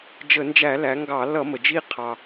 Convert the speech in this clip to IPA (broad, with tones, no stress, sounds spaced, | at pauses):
d͡ʒ ə˧˩˧ n d͡ʒ æ˧˩˧ l æ˩˧ ŋ ɡ ɑ˧˩˧ l ʌ˧˩˧ m ə˩ d͡ʒ i˦˨ qʰ ɑ˩